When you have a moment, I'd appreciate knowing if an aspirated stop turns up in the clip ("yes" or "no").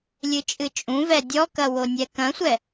no